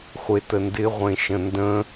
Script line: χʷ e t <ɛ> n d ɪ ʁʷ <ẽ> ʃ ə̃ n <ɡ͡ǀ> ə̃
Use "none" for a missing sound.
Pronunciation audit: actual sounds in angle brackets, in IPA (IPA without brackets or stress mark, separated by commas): ə, ẽ, d